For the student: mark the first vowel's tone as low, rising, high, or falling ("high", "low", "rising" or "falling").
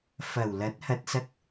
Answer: low